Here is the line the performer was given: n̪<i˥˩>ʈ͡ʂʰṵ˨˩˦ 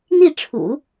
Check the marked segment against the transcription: correct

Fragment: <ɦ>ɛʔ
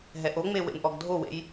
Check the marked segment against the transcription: correct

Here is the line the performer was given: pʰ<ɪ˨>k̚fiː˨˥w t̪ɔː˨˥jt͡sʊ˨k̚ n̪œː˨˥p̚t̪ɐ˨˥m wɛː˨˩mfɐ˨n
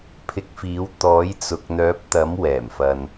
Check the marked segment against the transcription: incorrect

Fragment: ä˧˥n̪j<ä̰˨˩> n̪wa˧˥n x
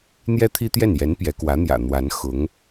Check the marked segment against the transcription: correct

